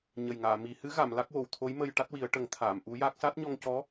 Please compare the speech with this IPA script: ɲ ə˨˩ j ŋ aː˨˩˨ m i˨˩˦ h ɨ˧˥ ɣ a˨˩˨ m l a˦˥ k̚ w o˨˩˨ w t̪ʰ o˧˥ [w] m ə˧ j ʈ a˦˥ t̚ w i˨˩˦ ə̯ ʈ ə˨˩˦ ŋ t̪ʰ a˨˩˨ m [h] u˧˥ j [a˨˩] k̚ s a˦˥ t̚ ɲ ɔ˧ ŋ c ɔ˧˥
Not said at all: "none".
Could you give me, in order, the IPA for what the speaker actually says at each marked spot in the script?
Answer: j, ʔ, a˦˥

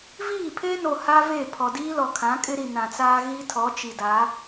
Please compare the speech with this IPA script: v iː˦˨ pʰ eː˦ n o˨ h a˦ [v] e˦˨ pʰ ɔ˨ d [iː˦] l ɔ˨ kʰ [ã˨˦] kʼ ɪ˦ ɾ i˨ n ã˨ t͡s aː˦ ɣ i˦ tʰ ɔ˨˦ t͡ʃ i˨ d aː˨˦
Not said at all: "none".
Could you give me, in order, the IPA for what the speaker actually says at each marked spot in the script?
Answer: v, iː˦, ã˨˦

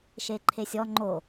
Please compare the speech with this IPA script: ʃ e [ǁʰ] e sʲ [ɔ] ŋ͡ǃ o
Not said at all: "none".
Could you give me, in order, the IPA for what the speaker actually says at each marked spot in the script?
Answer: ǃʰ, ɔ

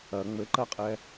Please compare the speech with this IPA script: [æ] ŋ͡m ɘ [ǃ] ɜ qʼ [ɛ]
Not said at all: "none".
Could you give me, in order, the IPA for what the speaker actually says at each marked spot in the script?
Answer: ɐ, ǃ, ɛ

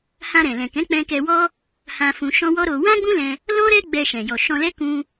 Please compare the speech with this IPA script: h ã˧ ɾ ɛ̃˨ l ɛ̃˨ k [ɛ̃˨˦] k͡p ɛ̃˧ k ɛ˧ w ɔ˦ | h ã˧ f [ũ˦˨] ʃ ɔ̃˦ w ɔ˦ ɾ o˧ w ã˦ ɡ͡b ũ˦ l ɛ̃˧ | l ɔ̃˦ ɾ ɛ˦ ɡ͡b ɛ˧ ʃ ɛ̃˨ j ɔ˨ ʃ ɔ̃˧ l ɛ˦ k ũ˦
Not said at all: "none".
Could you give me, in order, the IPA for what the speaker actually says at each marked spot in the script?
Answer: ɛ̃˨˦, ũ˧

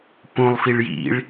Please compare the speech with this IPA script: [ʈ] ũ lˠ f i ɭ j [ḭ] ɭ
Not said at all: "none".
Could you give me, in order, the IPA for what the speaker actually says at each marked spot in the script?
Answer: p, ḭ

